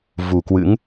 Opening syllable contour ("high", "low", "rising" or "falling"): low